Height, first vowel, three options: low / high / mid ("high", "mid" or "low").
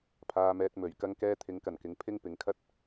low